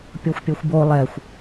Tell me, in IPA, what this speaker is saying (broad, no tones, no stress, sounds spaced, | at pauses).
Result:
pʲ o xʷ pʲ o xʷ b o lˠ ɛ xʷ